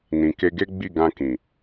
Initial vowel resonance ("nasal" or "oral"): nasal